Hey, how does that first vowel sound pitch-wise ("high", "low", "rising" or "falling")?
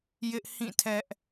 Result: high